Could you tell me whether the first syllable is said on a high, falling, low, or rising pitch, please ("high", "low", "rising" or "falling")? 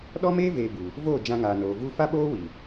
high